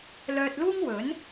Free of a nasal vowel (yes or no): yes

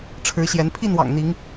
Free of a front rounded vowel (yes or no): yes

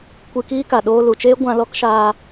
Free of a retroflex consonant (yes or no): yes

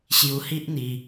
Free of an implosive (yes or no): yes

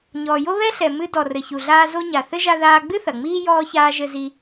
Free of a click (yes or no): yes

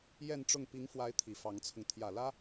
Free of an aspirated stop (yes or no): no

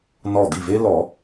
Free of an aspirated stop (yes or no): yes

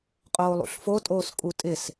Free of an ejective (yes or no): no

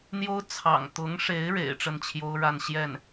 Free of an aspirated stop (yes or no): no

